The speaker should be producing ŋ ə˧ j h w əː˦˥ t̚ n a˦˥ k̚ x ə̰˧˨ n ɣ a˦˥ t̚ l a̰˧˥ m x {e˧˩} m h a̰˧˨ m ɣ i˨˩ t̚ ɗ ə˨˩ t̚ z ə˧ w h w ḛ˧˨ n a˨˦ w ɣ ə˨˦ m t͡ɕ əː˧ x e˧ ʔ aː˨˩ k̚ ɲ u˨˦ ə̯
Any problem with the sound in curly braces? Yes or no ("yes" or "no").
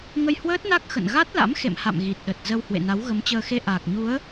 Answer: yes